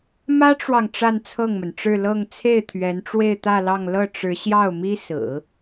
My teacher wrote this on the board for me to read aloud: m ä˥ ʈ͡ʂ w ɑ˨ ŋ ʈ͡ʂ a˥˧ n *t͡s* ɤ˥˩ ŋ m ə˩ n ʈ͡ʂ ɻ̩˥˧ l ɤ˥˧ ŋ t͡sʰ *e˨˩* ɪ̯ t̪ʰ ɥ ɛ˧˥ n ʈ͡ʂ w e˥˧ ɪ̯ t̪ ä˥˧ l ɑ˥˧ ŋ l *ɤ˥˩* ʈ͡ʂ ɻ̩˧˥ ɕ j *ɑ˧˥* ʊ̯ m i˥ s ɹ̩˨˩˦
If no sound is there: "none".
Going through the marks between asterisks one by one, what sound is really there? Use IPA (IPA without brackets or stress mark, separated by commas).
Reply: t͡sʰ, e˥˩, ɤ˥˩, ɑ˥˩